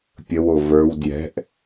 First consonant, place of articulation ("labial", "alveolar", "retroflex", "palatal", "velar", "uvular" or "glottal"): labial